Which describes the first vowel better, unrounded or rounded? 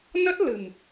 unrounded